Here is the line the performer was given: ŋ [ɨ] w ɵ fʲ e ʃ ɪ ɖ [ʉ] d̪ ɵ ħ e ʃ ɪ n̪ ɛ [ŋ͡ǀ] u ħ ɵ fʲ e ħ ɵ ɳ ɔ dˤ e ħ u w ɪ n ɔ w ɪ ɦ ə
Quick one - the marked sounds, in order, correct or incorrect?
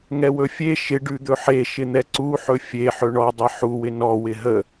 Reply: incorrect, correct, incorrect

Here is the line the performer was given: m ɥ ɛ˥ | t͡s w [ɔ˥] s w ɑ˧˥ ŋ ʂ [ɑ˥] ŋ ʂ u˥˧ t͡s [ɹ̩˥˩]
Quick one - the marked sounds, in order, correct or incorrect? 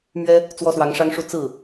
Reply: correct, correct, correct

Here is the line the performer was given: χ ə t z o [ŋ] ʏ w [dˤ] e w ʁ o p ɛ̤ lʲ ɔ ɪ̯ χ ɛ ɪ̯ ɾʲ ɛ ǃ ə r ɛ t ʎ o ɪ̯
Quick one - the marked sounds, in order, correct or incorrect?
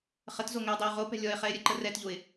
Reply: correct, correct

